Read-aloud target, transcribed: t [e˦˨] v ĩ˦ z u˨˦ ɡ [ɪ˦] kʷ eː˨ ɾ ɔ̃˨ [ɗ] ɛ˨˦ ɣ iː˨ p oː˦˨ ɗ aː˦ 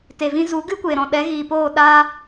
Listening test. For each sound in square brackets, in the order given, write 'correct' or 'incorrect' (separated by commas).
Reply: incorrect, incorrect, correct